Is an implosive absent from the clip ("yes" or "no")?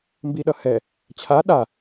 no